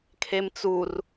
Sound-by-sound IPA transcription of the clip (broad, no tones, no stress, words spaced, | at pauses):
kʰemt͡sur